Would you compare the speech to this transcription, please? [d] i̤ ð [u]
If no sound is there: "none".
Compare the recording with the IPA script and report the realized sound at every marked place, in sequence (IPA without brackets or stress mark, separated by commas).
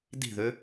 d, ø